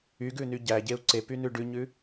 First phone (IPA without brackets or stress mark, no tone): y